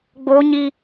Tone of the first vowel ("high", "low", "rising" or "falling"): high